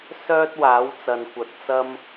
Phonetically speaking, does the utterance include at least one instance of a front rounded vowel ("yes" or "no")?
yes